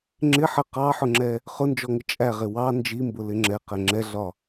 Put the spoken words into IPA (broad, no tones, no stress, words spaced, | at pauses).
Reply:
ŋ͡ǁɪ ħə qɑħʊŋ͡ǁɛ | χʊnd͡ʒɔŋɪ t͡ʃʼæʁɪ wɑ nd͡ʒimbʊlɪ ŋ͡ǁɛqɛ ŋ͡ǁɛɮɒ